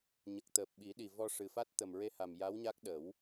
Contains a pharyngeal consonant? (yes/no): no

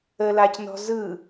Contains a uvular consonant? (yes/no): no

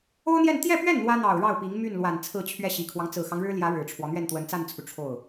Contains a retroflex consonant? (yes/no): yes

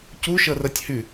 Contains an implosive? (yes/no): no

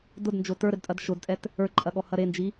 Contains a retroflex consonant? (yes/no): no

